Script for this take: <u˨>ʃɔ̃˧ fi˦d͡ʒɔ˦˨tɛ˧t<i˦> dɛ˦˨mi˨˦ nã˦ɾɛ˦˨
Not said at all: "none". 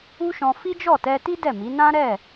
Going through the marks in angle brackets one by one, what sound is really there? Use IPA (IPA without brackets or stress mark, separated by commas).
u˦, i˦